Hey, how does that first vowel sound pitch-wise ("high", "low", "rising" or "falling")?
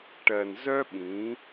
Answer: low